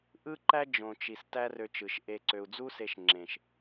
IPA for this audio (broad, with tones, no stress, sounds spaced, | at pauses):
ʔ ɯ˦ ǃ æ˦ d͡ʒ õ˨ t͡ʃ i˨ s t æ˦ r ø˧ t͡ʃ ɯ˨ ʃ ʔ e˧ ǀ ø˨ u̯ d͡z u˦ s e˧ ʃ ŋ͡ǁ ẽ˨ ʃ